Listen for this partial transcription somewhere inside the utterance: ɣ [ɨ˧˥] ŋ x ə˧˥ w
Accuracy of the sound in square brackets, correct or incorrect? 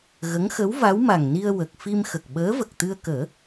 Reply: incorrect: ə˧˥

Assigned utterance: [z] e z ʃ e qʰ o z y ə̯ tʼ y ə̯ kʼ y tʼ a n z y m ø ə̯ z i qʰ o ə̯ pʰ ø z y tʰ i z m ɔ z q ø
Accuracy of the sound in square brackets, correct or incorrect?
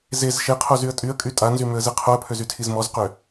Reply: correct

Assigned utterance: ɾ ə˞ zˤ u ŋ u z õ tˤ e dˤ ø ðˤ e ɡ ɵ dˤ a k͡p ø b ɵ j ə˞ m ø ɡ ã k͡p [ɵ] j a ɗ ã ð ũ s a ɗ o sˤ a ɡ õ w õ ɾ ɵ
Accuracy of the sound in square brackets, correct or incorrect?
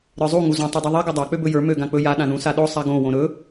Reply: correct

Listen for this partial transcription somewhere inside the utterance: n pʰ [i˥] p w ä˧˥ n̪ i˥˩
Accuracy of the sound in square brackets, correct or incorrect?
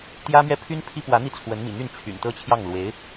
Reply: correct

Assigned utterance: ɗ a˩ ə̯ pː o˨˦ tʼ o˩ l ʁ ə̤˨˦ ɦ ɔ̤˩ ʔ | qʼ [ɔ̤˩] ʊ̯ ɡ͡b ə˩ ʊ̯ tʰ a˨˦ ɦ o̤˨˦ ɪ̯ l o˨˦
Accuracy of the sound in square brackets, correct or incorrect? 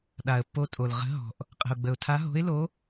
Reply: incorrect: ə̤˩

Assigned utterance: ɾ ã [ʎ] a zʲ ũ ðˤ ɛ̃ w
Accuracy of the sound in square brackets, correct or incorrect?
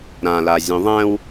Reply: incorrect: l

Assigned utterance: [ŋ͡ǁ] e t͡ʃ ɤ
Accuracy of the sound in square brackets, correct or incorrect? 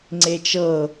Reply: incorrect: ŋ͡ǀ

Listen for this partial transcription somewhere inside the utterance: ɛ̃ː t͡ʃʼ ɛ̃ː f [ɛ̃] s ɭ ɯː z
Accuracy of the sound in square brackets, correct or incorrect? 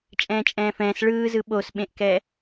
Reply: incorrect: ɛ̃ː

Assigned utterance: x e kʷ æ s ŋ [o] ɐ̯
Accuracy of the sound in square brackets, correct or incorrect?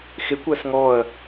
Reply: incorrect: ɔ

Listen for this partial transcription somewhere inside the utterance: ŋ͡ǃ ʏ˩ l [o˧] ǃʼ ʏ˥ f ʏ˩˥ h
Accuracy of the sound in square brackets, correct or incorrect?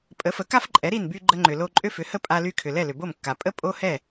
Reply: correct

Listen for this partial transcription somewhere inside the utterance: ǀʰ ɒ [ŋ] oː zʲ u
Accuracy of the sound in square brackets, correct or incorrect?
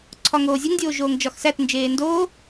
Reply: correct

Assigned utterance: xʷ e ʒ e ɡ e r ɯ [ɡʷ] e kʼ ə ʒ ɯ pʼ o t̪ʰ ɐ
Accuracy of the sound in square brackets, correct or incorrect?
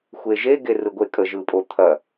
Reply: correct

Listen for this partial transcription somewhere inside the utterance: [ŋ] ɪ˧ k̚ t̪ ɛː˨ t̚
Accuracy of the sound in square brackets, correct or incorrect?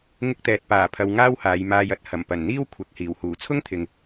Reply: correct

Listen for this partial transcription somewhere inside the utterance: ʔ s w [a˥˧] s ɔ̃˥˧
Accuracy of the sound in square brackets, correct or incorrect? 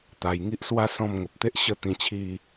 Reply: incorrect: a˦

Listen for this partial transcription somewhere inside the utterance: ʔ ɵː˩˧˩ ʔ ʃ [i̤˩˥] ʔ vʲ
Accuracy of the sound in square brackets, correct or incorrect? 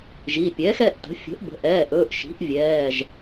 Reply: correct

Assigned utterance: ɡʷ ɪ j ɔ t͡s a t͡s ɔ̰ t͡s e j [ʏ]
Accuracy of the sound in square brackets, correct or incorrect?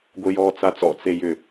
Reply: correct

